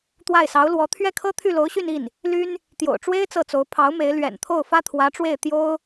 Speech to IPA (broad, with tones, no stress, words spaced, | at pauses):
t̪wa˥˩ɪ̯sɑ˧˥ʊ̯lwɔ˧˥ t̪ʰɥɛ˥˩kʰɤ˥ t̪ʰy˥˩lo˧˥ʊ̯ɕy˥˧ni˥˩n | ly˥n | t̪jo̰˨˩ʊ̯ ʈ͡ʂwe˥ɪ̯ t͡sɤ˥˩t͡so˧˥ʊ̯ pʰɑ˧˥ʊ̯me˧˥ɪ̯ lɥɛ̰˨˩nt̪ʰo˥˩ʊ̯fä˥ t̪ʰwä˧˥ʈ͡ʂwe˥˩ɪ̯ t̪jo˥ʊ̯